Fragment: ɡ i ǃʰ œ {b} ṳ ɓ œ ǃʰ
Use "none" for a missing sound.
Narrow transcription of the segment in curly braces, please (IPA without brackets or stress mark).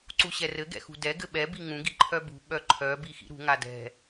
b